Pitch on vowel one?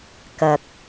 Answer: low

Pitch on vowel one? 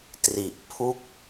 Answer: low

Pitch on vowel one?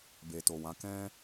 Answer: low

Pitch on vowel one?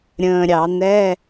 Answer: low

